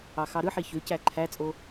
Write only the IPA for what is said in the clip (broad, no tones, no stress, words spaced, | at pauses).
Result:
ɑxɑɾɯħi çøcæ ǃʰæt͡sʼo